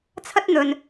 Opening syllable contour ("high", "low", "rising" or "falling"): high